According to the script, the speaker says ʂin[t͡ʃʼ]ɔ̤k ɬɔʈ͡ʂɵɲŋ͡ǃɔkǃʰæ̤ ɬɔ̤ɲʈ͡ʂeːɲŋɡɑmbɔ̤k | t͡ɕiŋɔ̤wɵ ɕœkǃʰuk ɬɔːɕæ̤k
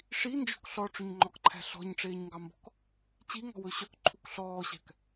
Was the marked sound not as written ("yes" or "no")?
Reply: yes